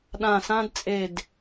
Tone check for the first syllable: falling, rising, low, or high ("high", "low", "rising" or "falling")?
low